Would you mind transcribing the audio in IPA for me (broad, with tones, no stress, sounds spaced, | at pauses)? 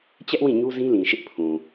t͡ɕ ɛ˦ ʔ w ĩ˦˨ ɲ u˦ z ĩ˦ l ĩ˨ ʃ ɪ˦ ʔ pʰ ũ˨